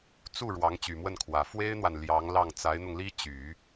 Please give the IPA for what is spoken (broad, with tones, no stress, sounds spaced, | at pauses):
t͡s u˥˩ ɻ w ɑ˧˥ ŋ t͡ɕ y˨˩ m w ə˥˩ n kʰ w ä˨˩ f w e˥ ɪ̯ n̪ w a˨ n l j ɑ˧˥ ŋ l ɑ˥˩ ŋ t͡s a˧˥ ɪ̯ n̪ ʊ˧ ŋ l i˥ t͡ɕ y˨˩˦